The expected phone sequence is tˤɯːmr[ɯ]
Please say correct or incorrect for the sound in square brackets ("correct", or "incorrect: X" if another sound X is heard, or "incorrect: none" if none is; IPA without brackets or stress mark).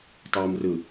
correct